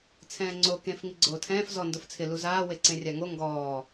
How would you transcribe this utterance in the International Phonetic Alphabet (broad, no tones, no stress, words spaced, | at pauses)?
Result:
t͡sʰɛ̃ːŋ͡ǀo kẽf ŋiɡ͡ǀoːtʰɛ̃ːf zɔ ndʊft͡sʰɪ luzaː weǀẽrʲaŋo ŋɡɔː